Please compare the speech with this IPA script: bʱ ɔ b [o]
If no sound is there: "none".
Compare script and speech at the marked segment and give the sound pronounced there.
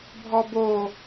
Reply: o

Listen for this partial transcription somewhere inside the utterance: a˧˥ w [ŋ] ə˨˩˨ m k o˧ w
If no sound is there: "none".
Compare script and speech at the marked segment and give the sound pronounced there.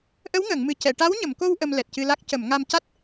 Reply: ɲ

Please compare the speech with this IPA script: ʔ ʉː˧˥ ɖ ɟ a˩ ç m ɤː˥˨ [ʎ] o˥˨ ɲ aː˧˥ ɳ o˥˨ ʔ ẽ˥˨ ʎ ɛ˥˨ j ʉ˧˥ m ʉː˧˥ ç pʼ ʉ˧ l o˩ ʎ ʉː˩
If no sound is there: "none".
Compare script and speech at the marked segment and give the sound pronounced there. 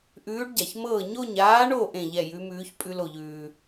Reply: ɲ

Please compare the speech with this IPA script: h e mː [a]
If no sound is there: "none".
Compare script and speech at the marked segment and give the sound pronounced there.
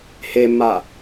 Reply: a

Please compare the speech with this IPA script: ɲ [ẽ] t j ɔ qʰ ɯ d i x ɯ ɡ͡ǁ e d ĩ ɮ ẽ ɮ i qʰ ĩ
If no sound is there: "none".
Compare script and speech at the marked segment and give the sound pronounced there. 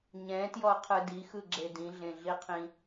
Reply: ɛ̃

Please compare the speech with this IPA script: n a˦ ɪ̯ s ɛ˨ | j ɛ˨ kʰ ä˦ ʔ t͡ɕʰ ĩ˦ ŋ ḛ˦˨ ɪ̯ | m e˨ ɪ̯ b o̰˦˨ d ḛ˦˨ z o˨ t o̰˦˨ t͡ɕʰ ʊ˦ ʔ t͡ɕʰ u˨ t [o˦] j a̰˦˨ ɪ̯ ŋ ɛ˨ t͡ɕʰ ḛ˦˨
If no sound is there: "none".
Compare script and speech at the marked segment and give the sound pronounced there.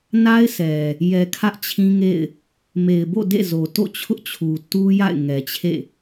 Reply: u˦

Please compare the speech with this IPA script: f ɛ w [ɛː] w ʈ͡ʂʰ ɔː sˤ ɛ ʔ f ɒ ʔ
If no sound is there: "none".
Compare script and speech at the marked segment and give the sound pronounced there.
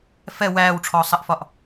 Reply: æː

